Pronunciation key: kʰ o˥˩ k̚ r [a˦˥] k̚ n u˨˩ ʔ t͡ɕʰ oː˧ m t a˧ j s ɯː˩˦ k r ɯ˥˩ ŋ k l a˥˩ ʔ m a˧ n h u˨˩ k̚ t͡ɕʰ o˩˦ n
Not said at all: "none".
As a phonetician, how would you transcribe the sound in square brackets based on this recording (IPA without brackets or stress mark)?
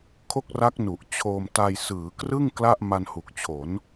a˦˥